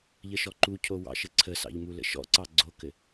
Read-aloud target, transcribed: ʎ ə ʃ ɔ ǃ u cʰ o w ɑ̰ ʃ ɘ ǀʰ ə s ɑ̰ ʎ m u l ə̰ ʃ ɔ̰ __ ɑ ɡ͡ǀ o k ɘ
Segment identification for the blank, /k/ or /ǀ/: ǀ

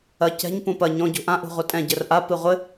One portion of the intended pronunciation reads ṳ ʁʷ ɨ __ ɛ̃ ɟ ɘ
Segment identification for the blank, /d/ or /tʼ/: tʼ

